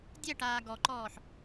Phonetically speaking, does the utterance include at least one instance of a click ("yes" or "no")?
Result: yes